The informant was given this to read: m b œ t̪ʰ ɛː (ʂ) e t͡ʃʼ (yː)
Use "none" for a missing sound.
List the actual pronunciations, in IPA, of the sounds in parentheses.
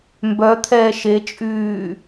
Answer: ʃ, yː

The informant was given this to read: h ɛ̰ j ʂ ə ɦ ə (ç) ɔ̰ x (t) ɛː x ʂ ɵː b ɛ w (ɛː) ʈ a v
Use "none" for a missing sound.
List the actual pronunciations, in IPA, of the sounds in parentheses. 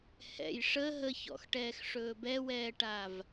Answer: ç, ʈ, ɛː

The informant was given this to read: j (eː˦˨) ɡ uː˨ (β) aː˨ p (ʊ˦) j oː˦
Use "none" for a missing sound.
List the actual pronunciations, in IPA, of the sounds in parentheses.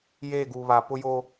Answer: eː˦˨, β, ʊ˦

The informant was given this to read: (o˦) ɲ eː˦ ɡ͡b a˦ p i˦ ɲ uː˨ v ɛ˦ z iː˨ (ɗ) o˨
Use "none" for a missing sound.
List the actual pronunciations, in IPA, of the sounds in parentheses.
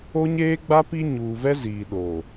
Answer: o˦, ɗ

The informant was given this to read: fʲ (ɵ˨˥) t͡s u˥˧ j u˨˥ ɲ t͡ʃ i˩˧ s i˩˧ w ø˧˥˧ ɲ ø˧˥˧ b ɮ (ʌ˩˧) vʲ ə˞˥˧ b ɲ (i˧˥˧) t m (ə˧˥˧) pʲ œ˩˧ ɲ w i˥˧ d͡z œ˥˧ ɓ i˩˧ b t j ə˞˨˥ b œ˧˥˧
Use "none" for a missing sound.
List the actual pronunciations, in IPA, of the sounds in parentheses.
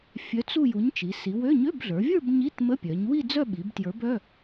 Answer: œ˨˥, ə˞˩˧, i˧˥˧, ə˧˥˧

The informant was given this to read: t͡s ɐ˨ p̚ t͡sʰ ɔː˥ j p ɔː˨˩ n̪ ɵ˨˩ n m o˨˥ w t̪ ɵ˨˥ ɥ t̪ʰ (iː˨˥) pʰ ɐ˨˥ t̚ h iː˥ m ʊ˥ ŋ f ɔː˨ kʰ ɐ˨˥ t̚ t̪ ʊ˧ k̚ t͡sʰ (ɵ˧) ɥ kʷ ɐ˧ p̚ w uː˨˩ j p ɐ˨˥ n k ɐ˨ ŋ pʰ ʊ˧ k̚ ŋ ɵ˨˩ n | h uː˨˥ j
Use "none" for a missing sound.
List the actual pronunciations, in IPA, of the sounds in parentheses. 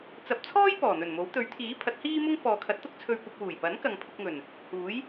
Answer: iː˨˥, ɵ˧

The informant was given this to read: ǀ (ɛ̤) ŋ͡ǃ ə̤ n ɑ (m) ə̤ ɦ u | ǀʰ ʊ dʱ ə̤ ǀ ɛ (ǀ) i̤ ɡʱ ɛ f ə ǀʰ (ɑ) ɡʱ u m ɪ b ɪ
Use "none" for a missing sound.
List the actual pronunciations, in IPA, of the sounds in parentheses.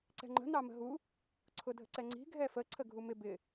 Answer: ɛ̤, m, ŋ͡ǀ, ə

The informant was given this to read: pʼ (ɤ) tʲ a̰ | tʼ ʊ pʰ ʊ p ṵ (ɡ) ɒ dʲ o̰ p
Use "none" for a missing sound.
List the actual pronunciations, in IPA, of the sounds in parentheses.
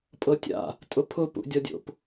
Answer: ɤ, dʲ

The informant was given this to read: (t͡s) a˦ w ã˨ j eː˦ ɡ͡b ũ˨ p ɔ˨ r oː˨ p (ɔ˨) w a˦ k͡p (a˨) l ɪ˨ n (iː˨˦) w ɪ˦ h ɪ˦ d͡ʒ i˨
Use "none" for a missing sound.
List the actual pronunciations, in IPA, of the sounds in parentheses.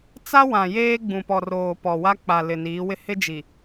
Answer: t͡s, ɔ˨, a˨, iː˨˦

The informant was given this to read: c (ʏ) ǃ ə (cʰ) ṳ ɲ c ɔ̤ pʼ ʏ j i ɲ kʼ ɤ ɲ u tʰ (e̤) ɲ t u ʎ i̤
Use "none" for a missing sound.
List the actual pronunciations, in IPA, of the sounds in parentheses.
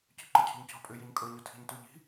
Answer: ʏ, cʰ, i̤

